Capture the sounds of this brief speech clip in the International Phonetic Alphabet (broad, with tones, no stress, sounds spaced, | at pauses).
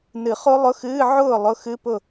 n ɨ˨˩˦ χ o˦˥ lˠ ʊ˧˥˧ x ɨː˧˥˧ ʕ ʊː˥˩ lˠ ʊ˧˥˧ x ɨ˧˥˧ p ʊ˥˩